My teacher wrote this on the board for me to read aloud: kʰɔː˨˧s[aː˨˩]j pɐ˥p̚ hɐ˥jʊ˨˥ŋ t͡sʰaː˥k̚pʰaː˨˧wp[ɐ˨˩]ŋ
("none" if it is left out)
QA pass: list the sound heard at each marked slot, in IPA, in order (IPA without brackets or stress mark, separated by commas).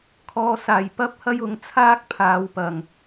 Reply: aː˨˩, ɐ˨˩